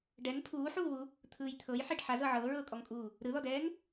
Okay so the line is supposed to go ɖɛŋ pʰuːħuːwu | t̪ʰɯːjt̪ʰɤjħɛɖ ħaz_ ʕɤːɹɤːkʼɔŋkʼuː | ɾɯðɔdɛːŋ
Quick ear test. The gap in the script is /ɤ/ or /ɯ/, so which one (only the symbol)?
ɤ